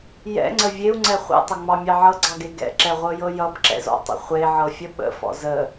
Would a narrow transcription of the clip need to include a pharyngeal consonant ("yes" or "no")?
yes